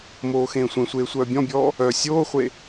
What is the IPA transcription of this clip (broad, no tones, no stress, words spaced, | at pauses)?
moːxẽːsʷẽsʷeː sʷœːbʲɔ̃bʲɔː | œ sʲoːχʷe